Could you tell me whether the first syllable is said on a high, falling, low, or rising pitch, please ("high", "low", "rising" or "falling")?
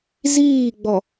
falling